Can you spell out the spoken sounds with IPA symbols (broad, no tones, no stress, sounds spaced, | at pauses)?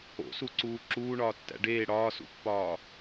o̰ s u ǀ uː ǁ uː ɳ ɒː tː æ̰ ɖ eː ɽ ɒː s ṵ pː ɒː